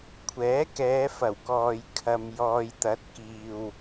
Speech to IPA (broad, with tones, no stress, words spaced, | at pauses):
kʷʰɛː˨˥kɛː˨˧fɐ˨˩wkɔː˨j kʰɐ˧mjɔː˧j t̪ɐ˨˥t̚kiː˨w